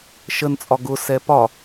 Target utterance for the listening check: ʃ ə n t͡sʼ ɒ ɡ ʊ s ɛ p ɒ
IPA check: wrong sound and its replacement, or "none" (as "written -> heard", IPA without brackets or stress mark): none